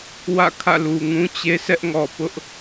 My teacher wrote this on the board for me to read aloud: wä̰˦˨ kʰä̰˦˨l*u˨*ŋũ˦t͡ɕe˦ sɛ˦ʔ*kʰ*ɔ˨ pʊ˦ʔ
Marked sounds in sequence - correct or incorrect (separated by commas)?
correct, incorrect